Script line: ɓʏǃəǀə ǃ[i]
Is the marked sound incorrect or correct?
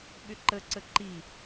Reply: correct